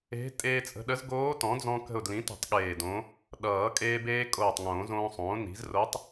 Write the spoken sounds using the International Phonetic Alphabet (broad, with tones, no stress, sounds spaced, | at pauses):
e̤˧˥ tʼ eː˧ t͡sʼ ə̤˧ ɗ ə˧˥ z ɡ oː˧˥ t ɔ̃˩˥ d͡z ɔ̃˧ k ə̤˧˩ ʊ̯ d l ĩ˩˥ t ə̤˨˩˦ tˤ ɠ eː˧˩ d õ˧˥ | ɗ ʌː˨˩˦ kʼ eː˧ b eː˧ kʼ oː˧˩ tˤ ŋ õː˨˩˦ z õː˧ sˤ õː˩˥ n i̤˩˥ z r o˧˥ tˤ